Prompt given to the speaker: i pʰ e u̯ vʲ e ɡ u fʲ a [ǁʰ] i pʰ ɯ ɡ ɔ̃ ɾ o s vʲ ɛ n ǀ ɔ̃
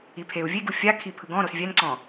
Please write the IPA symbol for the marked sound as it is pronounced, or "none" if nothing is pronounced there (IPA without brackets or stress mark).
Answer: kʰ